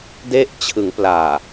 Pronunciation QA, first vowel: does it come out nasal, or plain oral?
oral